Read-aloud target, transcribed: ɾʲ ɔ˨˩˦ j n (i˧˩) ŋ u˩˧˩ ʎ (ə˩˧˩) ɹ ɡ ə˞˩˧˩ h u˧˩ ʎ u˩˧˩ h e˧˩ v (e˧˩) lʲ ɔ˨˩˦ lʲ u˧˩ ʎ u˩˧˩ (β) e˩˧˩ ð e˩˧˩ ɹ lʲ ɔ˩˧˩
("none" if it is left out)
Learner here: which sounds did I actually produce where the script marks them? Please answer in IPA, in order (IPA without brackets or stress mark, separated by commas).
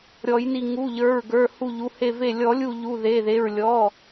i˧˩, ə˞˩˧˩, e˧˩, ð